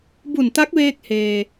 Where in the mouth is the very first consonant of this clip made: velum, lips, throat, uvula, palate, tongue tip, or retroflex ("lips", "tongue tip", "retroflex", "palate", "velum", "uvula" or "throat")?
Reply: lips